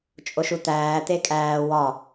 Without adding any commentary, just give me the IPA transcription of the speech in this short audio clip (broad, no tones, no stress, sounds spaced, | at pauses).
t͡ʃʼ o ʃ u t̪ æː t̪ e kʼ æː w ɒ